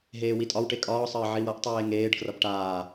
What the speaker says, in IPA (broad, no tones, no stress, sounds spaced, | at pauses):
ɦ eː w i tʼ ɒ w ʈ e kʼ ɒː sˤ əː ʕ i w ʌ ʔ tˤ eː ŋ eː ɖ k r ʌ b ʈ aː